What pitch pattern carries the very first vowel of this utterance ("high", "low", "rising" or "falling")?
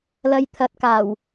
low